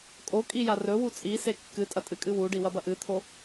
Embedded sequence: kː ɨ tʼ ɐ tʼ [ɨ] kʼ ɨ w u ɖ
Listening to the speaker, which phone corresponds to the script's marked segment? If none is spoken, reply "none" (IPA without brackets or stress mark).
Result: ɨ